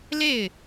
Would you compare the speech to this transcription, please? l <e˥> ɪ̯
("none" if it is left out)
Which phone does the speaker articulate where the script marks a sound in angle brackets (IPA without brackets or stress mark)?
e˥˩